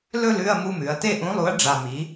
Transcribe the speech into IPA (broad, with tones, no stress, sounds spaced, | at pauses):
l ɵ˦˨ l ʉ˧˥˧ ɐ̯ m u˧˥˧ m ʉ˩˧ ɐ̯ t e˦˨ ʔ ũ˩˥ lˠ u˩˥ ɐ̯ ɖ͡ʐ a˨˩ m i˩˧